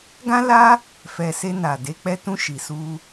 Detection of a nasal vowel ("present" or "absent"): present